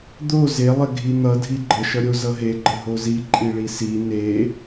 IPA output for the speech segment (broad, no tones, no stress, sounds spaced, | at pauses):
d̪ o z e lˠ ə ɡʱ i n̪ ʌ dʱ i ɡ͡ǃ ə ʃ ʌ ɾʲ o z ʌ ɦ e ɡ͡ǃ ə ɦ o z i ǃʼ i ɭ i s i n e